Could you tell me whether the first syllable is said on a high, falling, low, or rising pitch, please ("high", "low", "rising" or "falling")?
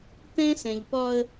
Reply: high